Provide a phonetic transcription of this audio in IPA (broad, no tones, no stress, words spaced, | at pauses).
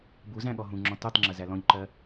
bu zæ̃ɠɔɦũŋ͡ǁɔ̃ tutˤŋ͡ǁə zælɔ̃ʎǃɜ